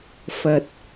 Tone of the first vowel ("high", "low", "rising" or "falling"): low